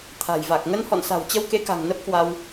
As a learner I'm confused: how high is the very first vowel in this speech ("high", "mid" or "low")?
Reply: low